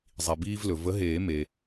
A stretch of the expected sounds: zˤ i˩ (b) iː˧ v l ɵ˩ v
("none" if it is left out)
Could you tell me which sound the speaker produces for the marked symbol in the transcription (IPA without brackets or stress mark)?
b